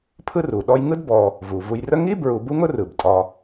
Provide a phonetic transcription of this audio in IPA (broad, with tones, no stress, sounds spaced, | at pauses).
pʰ ɯ˦ r u˩ ɗ ɔ˦ j ŋ ɯ˥ d b ɔ˨ | v u˩ v u˨ j r ə˦ ŋ i˥ b ɹ u˨ b u˥ ŋ ʊ˥ r ɯ˩ b tʼ ɒ˨